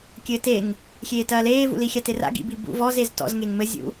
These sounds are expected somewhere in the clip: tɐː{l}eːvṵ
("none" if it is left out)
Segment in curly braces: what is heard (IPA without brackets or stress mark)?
l